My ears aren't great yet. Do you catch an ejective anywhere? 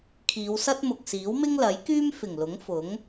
no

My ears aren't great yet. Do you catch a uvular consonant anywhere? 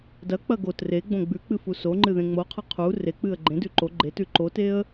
yes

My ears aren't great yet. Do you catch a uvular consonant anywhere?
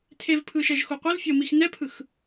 yes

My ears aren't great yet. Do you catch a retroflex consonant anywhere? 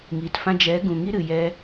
no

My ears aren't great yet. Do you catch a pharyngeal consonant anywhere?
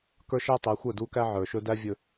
yes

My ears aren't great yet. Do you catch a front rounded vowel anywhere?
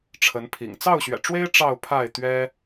no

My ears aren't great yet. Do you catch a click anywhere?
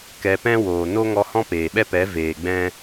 no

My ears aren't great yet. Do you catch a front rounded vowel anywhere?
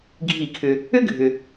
yes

